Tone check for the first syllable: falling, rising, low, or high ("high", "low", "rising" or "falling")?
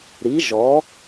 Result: rising